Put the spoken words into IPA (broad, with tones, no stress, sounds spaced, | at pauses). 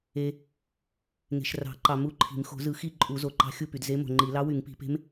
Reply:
e˨ | ŋ e̤˨ ʃ r ɑ̤˨˩˦ ǃ ɑ˨ m u˦˨ ǃʰ i̤˨˩˦ m x o̤˨˩˦ z ɯ˨˩˦ x i˦˨ ǃʼ u˨˩˦ z o˨ ǃ ɑ̤˧˥ xʲ u˦˨ p y˨ d z e˧˥ m o̤˨ ŋ͡ǃ i˨˩˦ l ɑ˧˥ w y˨˩˦ ŋ p i̤˨˩˦ p e̤˧˥ m